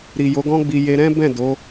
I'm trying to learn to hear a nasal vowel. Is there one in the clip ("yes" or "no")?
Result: yes